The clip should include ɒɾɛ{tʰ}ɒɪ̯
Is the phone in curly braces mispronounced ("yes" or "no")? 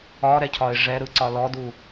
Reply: yes